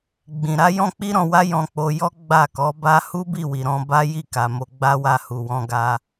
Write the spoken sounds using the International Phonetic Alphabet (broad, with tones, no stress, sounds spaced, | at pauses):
ɡ͡b ĩ˨ ɾ a˨˦ j ɔ̃˧ k͡p i˧ ɾ ɔ̃˨ w a˧ j ɔ̃˧ k͡p o˧ j ɔ˦ ɡ͡b a˦˨ k ɔ˨˦ b a˦ h u˦ b i˦˨ w i˨ ɾ ɔ̃˧ b a˦ j i˦˨ k a˨ m o˧ ɡ͡b a˦ w a˧ h u˨ w ɔ̃˧ ɡ a˧